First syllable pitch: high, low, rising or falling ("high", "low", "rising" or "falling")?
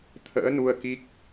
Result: rising